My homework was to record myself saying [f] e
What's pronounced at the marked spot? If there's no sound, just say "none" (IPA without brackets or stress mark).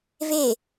v